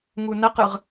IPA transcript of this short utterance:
ŋunɐqɯʁ

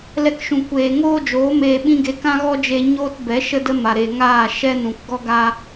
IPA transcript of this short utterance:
lɛ˧kʃũ˨ kʷeː˨ŋoː˦d͡ʒoː˨˦ meː˧ɓĩ˦ɡe˧ kã˦ɣɔ˦d͡ʒe˧ ɲoː˦tbɛ˨˦ ʃə˦də˦ ma˨ɾe˨ŋaː˦˨ ʃɛ˦nũ˨k ɡɔ˦ɡa˦

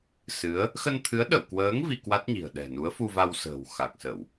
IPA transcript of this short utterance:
sɨ˨˦ə̯ | xə˧nt̪ʰɨ˨˦ə̯ ɗə̰˧˨wkwəː˨˦ŋ vi˧kwa˦˥t̚ɲi̤˨˩ə̯ ɗɛ̤˨˩nu˨˦ə̯ fu˧va˧wsə̤ː˨˩w xa˨˩k̚sə˧˩˨w

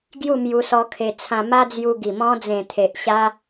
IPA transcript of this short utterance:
ɡju˥˧ mju˧sɔ˧kʰe˧ t͡sʰã˧ma˦ d͡zju˧ɡi˨˩ mɔ̃˧d͡zẽ˨˩ t̪ʰe˨ʔ ɕa˦

